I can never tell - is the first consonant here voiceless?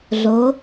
no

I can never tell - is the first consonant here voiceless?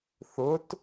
yes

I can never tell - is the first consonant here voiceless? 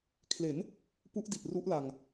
yes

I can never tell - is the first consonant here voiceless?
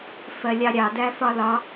yes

